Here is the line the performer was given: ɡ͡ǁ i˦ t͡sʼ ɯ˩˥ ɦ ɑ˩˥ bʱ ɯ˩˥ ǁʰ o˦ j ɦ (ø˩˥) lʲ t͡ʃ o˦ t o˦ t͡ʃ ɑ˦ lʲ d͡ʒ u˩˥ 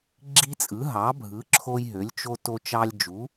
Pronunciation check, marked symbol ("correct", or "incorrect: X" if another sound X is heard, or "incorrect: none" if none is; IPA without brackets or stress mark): correct